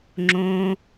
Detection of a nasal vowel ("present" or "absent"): present